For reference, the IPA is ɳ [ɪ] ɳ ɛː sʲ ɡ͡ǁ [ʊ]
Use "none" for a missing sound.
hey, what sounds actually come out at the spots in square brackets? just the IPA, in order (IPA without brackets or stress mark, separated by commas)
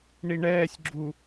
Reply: i, u